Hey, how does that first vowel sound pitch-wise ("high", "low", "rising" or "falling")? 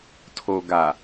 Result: low